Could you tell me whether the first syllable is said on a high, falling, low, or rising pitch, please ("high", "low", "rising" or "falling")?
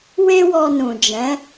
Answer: high